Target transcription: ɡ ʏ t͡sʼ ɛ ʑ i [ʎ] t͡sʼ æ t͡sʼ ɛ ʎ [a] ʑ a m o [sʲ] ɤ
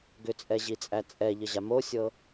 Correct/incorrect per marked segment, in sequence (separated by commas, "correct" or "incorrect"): incorrect, incorrect, correct